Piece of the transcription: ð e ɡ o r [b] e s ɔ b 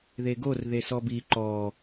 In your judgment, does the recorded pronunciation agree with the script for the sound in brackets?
no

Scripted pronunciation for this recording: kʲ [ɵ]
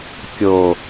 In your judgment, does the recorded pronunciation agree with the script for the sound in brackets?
no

